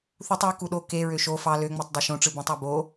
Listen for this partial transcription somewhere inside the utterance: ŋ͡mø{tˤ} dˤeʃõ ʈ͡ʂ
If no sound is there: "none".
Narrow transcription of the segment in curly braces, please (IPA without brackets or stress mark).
tˤ